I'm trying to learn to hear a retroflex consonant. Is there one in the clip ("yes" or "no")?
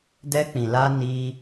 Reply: no